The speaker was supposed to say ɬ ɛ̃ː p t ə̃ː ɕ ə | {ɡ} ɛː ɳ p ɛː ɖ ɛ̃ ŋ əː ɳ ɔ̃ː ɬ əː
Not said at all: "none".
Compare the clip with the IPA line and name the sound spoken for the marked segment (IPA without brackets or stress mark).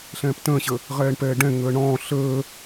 ʁ